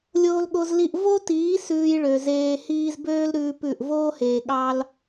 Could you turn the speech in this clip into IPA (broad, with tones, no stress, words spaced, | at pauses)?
lʲoː˧lɠo˧z li˧ʔ vo˦tiː˨˦ sʉː˧jɭø˨zeː˧ hiː˧zbøː˦l ɾʉː˦pʉ˦˨ʔ voː˦heː˨ ɠɑ˦l